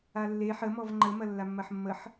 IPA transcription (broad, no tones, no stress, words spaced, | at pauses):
alːe ħəmɔv ŋ͡ǃəmɐlːamːɐħ mːəħ